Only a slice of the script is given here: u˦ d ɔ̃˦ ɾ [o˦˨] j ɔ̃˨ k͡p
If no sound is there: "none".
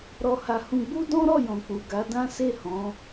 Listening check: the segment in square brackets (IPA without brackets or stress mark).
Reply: ɔ˦˨